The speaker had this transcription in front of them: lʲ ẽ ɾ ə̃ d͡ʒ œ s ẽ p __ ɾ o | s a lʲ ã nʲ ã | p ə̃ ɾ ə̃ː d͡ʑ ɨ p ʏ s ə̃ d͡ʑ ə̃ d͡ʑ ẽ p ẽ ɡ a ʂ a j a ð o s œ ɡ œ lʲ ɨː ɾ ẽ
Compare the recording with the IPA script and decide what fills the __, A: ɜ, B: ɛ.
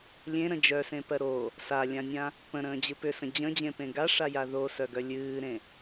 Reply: A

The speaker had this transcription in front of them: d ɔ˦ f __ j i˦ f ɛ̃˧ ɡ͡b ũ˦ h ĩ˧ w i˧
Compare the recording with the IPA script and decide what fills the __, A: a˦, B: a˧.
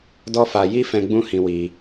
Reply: B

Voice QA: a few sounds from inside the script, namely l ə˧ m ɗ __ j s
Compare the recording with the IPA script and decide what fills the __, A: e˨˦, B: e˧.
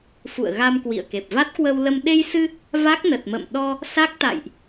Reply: B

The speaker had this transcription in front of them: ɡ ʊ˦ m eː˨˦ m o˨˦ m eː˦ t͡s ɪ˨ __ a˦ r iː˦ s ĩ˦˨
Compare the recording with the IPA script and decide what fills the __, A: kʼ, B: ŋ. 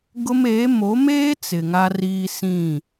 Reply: B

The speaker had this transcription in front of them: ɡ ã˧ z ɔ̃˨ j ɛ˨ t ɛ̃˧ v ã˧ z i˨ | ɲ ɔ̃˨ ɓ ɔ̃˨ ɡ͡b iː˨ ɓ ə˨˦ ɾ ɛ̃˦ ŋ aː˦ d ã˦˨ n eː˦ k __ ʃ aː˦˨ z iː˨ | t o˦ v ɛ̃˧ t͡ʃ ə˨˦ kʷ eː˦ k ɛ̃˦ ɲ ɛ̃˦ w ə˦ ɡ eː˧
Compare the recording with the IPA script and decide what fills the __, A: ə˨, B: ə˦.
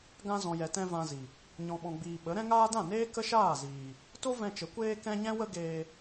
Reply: B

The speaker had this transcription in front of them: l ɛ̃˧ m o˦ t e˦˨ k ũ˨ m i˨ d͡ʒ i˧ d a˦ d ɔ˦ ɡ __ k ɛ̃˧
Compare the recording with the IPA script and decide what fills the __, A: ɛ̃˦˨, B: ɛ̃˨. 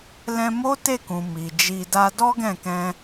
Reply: A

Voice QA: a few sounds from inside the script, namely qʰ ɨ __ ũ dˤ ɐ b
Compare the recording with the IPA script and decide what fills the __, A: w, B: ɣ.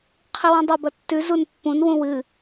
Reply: A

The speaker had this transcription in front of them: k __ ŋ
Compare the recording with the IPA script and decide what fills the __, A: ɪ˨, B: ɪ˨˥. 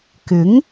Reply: B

